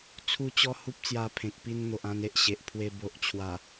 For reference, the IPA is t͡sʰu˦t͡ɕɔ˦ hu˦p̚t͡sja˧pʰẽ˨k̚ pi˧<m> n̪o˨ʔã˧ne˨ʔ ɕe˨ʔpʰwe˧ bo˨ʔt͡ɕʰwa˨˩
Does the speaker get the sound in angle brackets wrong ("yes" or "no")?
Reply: yes